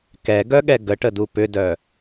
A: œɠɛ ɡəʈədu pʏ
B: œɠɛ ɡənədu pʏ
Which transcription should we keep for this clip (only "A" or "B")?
A